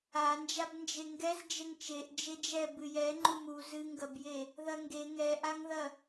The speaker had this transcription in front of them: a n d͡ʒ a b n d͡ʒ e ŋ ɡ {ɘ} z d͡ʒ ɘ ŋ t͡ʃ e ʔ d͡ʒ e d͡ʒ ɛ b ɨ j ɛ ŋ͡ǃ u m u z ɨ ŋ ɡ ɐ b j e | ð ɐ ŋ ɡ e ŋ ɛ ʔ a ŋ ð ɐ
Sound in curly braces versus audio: incorrect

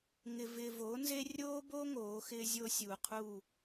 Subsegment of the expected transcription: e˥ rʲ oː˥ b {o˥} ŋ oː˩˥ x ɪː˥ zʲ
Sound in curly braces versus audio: correct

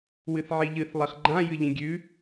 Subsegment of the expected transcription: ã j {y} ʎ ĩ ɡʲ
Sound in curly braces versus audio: incorrect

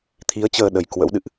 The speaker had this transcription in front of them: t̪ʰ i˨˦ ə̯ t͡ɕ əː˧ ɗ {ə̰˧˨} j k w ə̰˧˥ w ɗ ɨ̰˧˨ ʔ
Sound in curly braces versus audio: incorrect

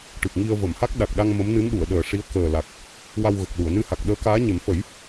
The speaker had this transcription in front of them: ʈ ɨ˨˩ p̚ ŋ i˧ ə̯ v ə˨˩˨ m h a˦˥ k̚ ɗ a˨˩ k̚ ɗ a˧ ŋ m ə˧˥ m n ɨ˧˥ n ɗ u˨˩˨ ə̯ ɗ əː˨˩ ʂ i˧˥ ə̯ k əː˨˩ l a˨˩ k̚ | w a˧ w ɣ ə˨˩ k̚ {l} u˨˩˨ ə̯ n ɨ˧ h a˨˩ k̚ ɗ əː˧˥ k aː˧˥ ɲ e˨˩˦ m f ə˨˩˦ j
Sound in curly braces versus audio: correct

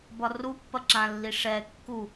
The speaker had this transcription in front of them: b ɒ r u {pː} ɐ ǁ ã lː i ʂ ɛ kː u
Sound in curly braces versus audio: correct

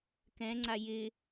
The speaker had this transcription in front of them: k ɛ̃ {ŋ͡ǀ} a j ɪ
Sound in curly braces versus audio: correct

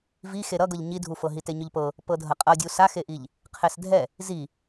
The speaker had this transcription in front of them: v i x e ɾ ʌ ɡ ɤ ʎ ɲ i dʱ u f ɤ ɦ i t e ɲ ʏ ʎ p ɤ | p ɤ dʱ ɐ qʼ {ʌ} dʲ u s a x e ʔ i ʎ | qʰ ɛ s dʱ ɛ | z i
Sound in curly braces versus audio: correct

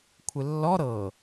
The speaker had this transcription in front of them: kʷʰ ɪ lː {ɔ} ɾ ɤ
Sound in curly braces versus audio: correct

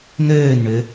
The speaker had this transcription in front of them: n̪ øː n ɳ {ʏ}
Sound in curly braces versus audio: correct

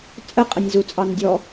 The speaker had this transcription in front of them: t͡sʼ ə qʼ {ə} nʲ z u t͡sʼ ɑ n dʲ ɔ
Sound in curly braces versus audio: correct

